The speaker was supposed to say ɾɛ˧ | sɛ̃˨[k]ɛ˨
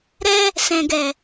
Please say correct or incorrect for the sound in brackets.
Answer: incorrect